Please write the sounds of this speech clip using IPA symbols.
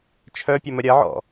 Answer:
t͡ʃʰ œ pʲ ɐ m ə ɾʲ ɐ ʕ ɔ̰

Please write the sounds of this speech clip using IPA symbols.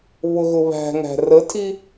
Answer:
β ʊ ɣ ʊ β æ̤ ŋ æ̤ r ə tʰ i

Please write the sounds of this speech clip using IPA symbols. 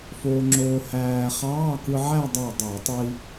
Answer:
f oː˧ ŋ͡ǁ oː˧ h æː˧ χ ɑː˧˥˧ k ɯ˧ ʕ æ˥˧ dˤ ɑ˧˩ dˤ æ˧˩˧ tˤ i˧

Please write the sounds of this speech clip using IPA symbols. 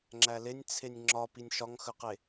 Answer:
ŋ͡ǁ æ l e nʲ t͡sʰ e nʲ ŋ͡ǁ ɒ p i nʲ ʃ ɒ ŋ x ə q e

